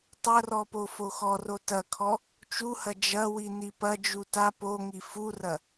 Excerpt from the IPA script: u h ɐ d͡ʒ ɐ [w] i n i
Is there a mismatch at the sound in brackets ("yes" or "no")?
no